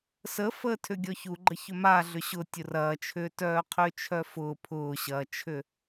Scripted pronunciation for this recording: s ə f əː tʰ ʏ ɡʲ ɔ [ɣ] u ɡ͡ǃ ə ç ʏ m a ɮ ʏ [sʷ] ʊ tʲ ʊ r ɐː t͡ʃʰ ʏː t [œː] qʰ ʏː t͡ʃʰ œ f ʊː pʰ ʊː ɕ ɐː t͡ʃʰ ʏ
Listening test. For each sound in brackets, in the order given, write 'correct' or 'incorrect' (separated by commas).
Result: incorrect, incorrect, correct